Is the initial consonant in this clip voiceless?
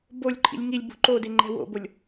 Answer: no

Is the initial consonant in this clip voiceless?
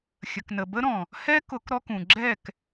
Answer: yes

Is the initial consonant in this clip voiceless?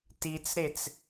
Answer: yes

